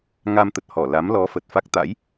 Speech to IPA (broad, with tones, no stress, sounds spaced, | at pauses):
ŋ a˧ m t̪ ə˨˩ t̚ h ɔ˧˩ l a˨˦ m l ɔ˨˦ f ə˨˩ t̚ f a˦˥ k̚ t̪ a̰˧˥ j